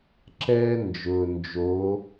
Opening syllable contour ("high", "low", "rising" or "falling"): high